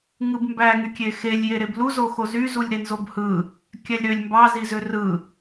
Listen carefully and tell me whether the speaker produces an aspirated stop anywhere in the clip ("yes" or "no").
no